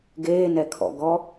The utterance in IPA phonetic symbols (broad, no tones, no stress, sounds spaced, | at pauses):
ɡ eː n ɛ kʰ ɔ̰ ɡ ɔ